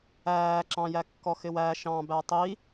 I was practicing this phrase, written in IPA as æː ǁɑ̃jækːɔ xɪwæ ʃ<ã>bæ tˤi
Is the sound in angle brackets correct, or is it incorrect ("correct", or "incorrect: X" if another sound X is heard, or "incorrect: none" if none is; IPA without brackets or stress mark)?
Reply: incorrect: ɑ̃